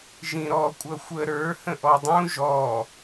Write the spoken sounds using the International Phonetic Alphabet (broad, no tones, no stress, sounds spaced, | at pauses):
ʒ ĩ ɾ ɔ kʷʼ ʌ xʷ ə ɾ ə˞ h ə̃ ʔ ɔ dˤ ũ ʒ ɔ